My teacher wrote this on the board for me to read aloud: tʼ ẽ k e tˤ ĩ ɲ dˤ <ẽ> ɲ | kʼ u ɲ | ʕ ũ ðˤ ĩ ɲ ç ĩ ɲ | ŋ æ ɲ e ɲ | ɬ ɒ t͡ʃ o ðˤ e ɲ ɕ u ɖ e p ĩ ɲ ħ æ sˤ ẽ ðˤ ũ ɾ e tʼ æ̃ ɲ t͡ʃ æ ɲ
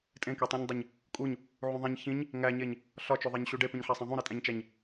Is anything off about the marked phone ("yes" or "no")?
yes